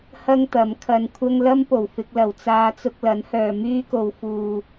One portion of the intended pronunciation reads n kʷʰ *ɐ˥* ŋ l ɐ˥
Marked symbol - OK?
yes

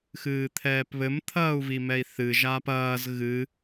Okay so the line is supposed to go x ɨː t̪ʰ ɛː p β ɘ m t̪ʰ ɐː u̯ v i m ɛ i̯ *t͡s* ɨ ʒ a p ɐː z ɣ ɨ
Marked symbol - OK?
no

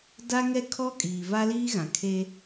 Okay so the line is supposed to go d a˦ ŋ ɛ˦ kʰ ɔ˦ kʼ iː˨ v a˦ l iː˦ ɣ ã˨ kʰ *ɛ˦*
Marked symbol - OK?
no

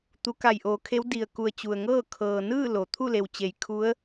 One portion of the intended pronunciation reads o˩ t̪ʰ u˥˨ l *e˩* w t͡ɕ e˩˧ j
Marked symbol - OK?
yes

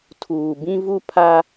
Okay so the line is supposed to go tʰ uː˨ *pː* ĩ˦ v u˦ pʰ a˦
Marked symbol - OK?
no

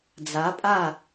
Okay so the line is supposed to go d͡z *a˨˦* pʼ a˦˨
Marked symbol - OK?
yes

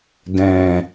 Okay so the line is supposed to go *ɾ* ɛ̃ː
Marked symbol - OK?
no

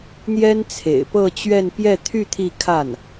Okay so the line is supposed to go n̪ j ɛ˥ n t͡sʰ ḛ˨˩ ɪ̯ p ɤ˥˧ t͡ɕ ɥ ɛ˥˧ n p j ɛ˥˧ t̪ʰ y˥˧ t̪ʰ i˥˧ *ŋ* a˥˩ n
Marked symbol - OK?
no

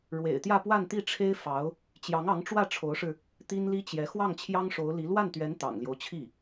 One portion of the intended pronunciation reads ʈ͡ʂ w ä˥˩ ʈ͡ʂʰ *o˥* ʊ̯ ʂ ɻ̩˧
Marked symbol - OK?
no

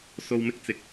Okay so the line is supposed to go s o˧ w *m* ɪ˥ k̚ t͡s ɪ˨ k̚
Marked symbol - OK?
yes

